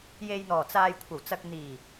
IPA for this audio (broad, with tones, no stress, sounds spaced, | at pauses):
j e˨ j n̪ ɔː˨˩ t͡s aː˨ j kʷʰ ɐ˨˩ w t͡s ɐ˨ k̚ n̪ iː˨˩